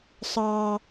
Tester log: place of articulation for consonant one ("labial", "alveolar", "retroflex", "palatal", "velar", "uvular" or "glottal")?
alveolar